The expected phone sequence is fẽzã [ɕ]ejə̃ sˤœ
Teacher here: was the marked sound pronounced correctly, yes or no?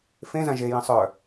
no